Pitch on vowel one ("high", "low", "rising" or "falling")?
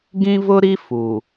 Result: high